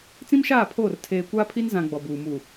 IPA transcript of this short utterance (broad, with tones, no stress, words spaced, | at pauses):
t͡sĩ˦mʃaː˦˨pʰoː˦˨r tʰeː˨kʷaː˦pʰi˦n zã˦ ɡ͡bɔ˨buː˨ mu˨